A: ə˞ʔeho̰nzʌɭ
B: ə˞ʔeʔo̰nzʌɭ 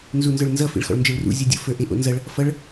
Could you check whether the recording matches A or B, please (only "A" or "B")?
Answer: B